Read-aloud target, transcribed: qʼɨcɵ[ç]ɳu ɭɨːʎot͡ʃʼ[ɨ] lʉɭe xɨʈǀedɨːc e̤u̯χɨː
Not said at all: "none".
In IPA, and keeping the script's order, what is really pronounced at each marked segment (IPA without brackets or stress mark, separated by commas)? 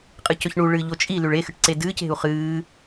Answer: ç, i